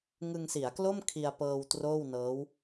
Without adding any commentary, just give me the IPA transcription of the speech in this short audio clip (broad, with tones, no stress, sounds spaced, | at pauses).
ŋ ɯ˧ ŋ s i˩˦ a̯ k l o˥˩ m kʰ i˧ a̯ p ɤː˧ w t r oː˥˩ w n ɤː˦˥ w